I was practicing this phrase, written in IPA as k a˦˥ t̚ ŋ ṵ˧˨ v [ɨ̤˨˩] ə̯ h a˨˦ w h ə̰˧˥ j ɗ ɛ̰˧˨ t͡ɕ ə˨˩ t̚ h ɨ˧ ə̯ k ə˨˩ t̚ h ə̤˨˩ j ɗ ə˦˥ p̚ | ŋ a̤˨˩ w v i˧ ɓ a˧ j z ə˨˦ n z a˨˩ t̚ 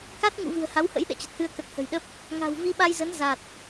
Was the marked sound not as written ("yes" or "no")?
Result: no